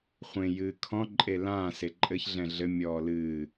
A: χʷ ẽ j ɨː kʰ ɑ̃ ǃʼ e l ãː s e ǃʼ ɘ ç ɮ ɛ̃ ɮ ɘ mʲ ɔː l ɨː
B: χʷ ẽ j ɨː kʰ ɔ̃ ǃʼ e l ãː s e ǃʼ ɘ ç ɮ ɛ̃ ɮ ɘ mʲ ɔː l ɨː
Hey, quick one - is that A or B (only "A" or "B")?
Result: B